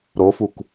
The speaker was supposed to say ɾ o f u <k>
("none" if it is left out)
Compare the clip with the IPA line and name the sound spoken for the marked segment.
k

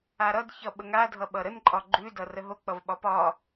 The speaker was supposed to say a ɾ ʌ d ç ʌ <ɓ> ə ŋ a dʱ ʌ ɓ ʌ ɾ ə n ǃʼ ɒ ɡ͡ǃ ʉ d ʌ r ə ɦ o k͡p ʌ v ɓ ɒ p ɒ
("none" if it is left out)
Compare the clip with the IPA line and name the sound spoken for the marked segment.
ɓ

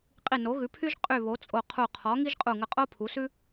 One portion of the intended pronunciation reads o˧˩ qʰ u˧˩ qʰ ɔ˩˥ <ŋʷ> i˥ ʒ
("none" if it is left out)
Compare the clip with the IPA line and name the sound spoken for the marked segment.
ŋ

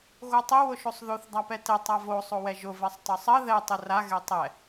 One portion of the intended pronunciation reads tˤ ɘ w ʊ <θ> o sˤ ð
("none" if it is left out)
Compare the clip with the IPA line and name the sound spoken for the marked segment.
ʃ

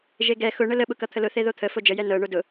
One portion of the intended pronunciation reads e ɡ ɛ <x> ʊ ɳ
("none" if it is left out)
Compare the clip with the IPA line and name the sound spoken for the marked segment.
x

